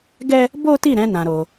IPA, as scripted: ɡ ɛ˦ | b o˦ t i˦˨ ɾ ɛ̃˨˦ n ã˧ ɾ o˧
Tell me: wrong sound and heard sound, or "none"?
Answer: none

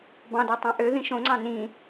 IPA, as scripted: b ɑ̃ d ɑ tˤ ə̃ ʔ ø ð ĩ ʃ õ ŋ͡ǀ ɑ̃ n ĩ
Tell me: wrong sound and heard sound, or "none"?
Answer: ə̃ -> ɑ̃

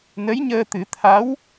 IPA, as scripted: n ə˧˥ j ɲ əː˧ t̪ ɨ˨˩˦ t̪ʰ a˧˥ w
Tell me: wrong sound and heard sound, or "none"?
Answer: none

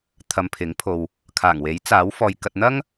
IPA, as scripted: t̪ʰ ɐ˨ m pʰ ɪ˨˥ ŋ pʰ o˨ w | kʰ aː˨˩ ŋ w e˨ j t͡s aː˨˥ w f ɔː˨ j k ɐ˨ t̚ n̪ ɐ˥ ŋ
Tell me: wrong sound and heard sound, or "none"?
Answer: e˨ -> e˨˥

